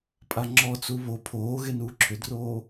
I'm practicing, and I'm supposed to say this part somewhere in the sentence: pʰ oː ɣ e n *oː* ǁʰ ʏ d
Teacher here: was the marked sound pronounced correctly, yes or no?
no